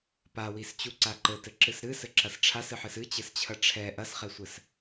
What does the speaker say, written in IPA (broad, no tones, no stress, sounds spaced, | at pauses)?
p a w i s t͡ɕ u ǀ a ǃ ɘ t ɘ ǁ ɨ s ɾ ɨ s ɘ ǁ ɐ s ʈ͡ʂʰ a s ɨ ħ ɨ s ɨ t͡ɕ ɘ s t͡ɕʰ ɐ ʈ͡ʂʰ ɛ ʔ ɐ s χ ɛ sʷ ɘ s